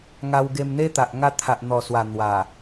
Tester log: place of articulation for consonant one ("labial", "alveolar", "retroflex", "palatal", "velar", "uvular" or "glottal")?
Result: velar